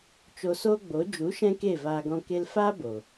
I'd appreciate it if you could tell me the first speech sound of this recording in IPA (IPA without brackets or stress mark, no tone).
t͡ʃ